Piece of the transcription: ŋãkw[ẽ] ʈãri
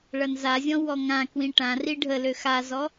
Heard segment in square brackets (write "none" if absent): ĩ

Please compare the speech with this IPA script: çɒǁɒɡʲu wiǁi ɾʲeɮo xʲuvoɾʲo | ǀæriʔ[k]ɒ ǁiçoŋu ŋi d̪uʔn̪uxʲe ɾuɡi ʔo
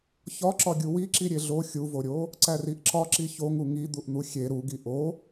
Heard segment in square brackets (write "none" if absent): ǁ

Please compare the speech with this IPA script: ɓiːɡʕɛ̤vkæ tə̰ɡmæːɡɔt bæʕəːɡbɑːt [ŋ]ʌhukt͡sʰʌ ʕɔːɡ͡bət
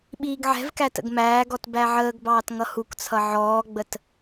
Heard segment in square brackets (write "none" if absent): ŋ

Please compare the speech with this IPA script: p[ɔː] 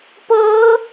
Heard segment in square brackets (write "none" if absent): ɤː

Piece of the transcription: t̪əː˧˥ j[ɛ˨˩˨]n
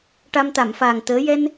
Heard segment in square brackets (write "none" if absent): ɛ˧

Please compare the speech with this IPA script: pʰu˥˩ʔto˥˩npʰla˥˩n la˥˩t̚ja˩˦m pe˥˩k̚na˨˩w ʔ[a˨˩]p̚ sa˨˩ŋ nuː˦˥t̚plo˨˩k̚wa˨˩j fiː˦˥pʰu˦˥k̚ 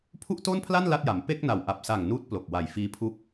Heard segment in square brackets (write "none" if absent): a˨˩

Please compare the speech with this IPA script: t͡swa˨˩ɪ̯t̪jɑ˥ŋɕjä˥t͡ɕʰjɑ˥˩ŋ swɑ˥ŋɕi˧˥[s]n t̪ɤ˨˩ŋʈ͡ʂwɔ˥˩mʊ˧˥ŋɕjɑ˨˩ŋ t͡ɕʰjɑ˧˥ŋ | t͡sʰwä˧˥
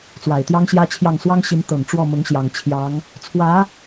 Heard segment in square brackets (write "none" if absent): none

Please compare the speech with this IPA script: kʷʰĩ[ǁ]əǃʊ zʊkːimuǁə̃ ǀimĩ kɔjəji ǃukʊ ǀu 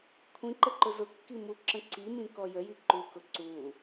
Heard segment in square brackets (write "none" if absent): ǃ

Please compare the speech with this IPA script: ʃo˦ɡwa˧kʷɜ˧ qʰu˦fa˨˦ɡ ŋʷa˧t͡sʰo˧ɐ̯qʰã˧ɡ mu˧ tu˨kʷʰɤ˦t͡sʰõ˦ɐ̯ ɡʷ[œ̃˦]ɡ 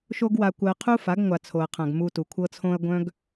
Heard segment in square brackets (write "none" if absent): œ̃˦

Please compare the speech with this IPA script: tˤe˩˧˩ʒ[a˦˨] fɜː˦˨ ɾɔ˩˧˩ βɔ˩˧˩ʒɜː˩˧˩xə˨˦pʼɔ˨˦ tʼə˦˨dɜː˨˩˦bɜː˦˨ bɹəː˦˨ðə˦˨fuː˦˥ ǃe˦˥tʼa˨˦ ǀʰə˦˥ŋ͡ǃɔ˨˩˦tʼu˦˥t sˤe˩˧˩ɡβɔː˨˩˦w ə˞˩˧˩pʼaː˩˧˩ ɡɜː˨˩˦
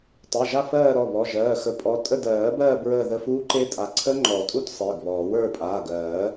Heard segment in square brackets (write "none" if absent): a˦˨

